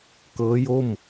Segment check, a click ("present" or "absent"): absent